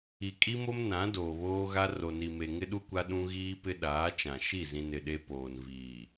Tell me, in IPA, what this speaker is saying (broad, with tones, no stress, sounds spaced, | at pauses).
i˨ kʼ i˦ m o˦ m n ã˨˦ d oː˨ β oː˦ ɣ a˦ r o˨ n i˨ m e˨ ŋ ɪ˦ ɗ u˦ kʷ a˦ ɗ ũ˦ ɣ iː˦ p ɪ˦ ɗ aː˨˦ t͡ʃ ã˨ ʃ i˦˨ z ĩ˨ n ɪ˨ ɗ e˦ p oː˨ n v iː˨